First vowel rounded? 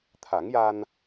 no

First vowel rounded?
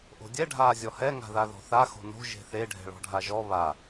yes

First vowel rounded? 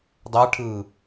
no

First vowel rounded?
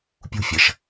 yes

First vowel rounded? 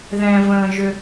no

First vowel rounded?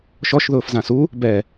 yes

